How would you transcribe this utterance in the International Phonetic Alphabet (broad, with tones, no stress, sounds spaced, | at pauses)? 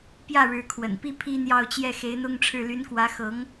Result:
p j ä˥˩ ɻ ɻ̩˧˥ kʰ w ə̰˨˩ n p i˥ pʰ i˥ n̪ j ɑ˥˧ ʊ̯ t͡ɕ j ɛ˥˩ x e˧˥ ɪ̯ n̪ ʊ˥ ŋ ʈ͡ʂʰ ɻ̩˥˩ l y˧˥ n k w ä˧˥ x ɤ˧˥ ŋ